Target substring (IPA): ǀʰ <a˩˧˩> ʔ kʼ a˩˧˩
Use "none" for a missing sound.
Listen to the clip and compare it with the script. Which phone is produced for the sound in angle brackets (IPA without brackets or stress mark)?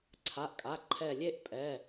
a˩˧˩